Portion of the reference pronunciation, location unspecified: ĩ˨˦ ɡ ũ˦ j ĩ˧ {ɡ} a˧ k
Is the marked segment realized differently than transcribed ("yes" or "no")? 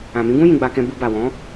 yes